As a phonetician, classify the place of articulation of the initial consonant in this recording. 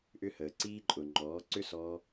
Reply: glottal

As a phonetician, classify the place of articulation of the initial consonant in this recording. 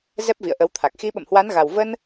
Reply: alveolar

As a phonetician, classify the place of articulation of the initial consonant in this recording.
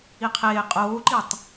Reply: uvular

